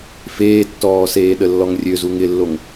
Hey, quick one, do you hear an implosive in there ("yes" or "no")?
yes